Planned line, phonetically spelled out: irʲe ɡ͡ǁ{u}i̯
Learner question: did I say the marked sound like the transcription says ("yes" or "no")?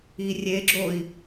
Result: no